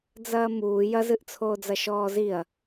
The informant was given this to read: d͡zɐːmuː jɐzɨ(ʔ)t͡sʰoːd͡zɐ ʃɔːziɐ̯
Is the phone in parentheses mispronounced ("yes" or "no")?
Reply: no